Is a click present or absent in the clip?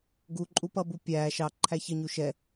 present